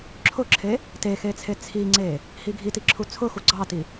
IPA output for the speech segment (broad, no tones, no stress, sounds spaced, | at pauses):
ǁʰ ʊ ǁʰ e | t e x e t͡sʰ e t͡sʰ i ŋ͡ǀ e | h i ɡʱ i t i ǁʰ u t͡sʰ ʊ x u ɡ͡ǀ ɑ t i